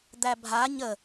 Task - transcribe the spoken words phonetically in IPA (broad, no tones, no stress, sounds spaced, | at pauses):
d̪ æ bʱ a ɲ ə